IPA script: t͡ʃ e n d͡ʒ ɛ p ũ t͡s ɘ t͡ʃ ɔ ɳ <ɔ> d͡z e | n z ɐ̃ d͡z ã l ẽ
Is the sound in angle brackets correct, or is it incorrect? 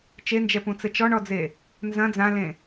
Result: correct